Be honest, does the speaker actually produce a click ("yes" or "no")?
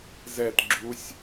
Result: yes